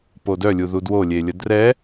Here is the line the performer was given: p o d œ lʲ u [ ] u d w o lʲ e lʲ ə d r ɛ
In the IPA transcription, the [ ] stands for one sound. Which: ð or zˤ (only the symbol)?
ð